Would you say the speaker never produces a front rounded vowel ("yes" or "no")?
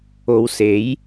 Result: yes